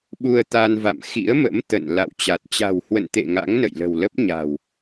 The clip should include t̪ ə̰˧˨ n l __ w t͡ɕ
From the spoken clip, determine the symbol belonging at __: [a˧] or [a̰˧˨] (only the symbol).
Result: a̰˧˨